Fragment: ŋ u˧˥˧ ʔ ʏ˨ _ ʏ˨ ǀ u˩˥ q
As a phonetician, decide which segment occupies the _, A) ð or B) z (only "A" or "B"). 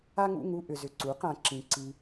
B